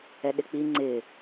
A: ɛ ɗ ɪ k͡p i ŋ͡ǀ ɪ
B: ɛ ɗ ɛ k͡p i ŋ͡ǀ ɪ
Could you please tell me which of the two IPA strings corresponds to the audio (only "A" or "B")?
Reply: A